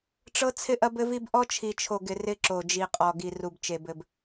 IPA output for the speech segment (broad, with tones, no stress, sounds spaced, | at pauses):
ʈ͡ʂ ɤ˦ t͡sʰ ɪ˦ ʔ ɐ˦ b ɘ˦ v i˦ b ʔ ɔ˦ t͡ʃʰ i˨ t͡ʃʰ o˨ ɡ ɪ˨ r ɪ˦ ǁ o˨ d͡ʒ i˨ qʼ ɔ˨ ɡ i˨ r u˨ b t͡ʃ e˨ b ɘ˨ b